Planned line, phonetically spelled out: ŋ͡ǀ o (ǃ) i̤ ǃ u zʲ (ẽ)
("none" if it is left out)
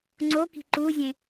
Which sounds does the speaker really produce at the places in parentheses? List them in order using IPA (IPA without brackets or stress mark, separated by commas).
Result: k, ẽ